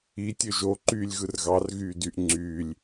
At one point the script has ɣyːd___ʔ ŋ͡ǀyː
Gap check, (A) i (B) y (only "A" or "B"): B